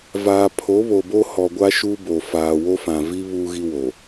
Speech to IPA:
v aː˨ pʰ o˨˦ β o˨ b o˦ h ɔ˨ ɡʷ a˦ ʃ uː˦ b o˨ f aː˨ w o˦ f ã˨ v i˦ β uː˦ ɣ i˦ w o˨

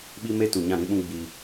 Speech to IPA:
ɓ i˦ m e˦ t u˨ ɲ ã˦˨ ɾ ĩ˦ ɓ ũ˦ ɡ͡b i˦

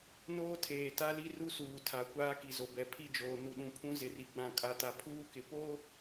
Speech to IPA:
n oː˦ tʰ eː˨ t a˦ l i˦ r u˦ s uː˨ tʰ a˨ kʷ aː˦ k i˨ z o˨ b ɛ˨ pʰ i˦˨ d͡ʒ oː˨ n u˨ ɗ ũ˨ pʰ ũ˦ z ɪ˨ r i˨ ɡ͡b ã˨ kʼ a˨ t a˨ pʰ uː˦ k ɪ˨ p o˦

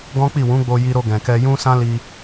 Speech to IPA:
ɡ ɔ̃˦ k͡p i˦˨ w ũ˨˦ ɡ͡b o˧ j i˧ ɾ o˧ ɡ ɛ̃˨ k ɛ˧ j ũ˦ s ã˦ l i˧

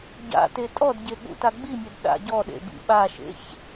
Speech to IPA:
ɟ a̰ t e tʼ ɔ d ɟ e ɠ ṵ t a ɡ͡b i mʲ ɛ d ɗ a̰ ɟ ɔ ɗ ḛ b ḭ ɓ a ʃ ḛ ç

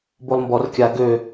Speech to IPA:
b o lˠ m b ɔ r kʲ a ɡ ø

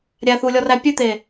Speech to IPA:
ɾʲ æ θ u lʲ ɔ r æ pʲ ʉ t̪ e

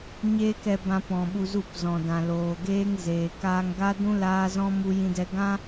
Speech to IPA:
ɲ eː˦ k ɛ˧ b ã˧ p ɔ̃˨ ɓ u˧ z u˦˨ p z ɔ̃˨ d ã˨ l oː˨ ɡ eː˦ ŋ z eː˨ k aː˧ ŋ ɡ a˦ d ũ˦ l aː˦ z ɔ̃˦ m u˦ j ĩ˦ d ɛ˦ ɡ ã˦

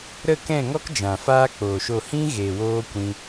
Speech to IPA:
ɾ ə˦˨ k ɛ̃˦˨ ŋ ɔ˦ k d͡ʒ ã˨ f aː˦ k͡p oː˨ ʃ o˦˨ h ĩ˦ ɣ eː˨ w oː˦ kʷ ĩ˧

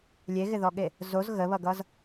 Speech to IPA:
lʲ e ɣ ɪ ð ɔ ɠ e | z o z ɣ ə β ʌ ɡ ʌ z

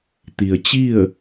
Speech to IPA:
t̪ i˩ ə̯ t͡ɕ i˥˨ ə̯

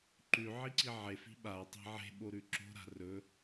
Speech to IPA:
ǃ ʉ ʕ i ǀ i ʕ e f i̤ ɓ a tˤ e̤ ʕ e̤ ɓ o ɾ ʉ ǁ o̤ ɾ a̤ r ɵ

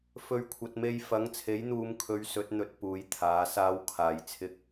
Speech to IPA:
f ɵ˨˧ ɥ kʷʰ ɐ˨ t̚ m e˧ j f ɐ˨˥ ŋ t͡sʰ e˨˥ j n̪ uː˨˧ m kʰ ɵ˨˧ ɥ s ɵ˨˥ t̚ n̪ ɵ˨˥ t̚ p uː˨˥ j t̪ʰ aː˨˥ s aː˥ w kʰ aː˨ j t͡sʰ ɪ˥ k̚

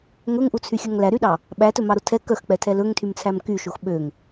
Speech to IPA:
ŋ ɵ ŋ ʔ u t͡sʰ y xʲ œ ŋ l æ ɾ y ɗ ɑ | ɓ æ t ɵ m ɑ ɾ o tʰ ɛ k œ x k͡p ɛ tʰ ɛ l ɵ ŋ tʰ y m t͡sʰ æ m k y ʃ o x ɓ ø ŋ

